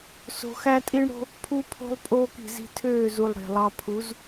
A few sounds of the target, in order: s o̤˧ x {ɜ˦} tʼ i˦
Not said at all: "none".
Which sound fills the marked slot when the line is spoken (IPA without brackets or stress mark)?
æ˦